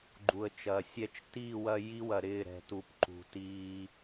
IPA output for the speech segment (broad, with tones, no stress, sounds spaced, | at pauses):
ɡ͡ǃ u˨ ə̯ t͡ʃ ɐː˨ sʲ ɛ˦ t͡ʃ t iː˦˨ w ɐ˦ j i˦ w ɐ˨ ɾ ɪː˦˨ ɾ ɛ̤˦ t u˦ p ǃ ṳ˨ t iː˦